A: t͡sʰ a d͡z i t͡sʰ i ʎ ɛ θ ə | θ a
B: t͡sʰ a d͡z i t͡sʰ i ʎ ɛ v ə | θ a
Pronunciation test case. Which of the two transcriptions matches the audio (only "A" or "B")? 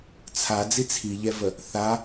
B